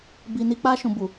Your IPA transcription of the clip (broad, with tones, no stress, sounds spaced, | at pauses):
b i˧ n i˧ k͡p a˧ ʃ ũ˨ b u˨